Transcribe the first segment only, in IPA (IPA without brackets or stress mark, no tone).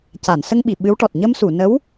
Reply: c